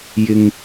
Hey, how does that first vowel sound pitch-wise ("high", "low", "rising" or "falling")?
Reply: low